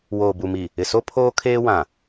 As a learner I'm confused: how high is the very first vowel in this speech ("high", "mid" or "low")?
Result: mid